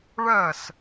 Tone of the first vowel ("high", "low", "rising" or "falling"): falling